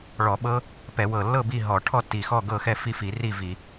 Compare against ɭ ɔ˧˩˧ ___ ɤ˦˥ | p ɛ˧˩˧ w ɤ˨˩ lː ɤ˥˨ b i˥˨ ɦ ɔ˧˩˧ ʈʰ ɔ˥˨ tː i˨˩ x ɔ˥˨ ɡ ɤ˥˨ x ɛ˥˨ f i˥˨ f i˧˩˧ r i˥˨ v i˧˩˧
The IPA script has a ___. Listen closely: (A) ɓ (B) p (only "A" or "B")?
A